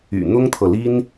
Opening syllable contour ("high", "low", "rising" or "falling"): low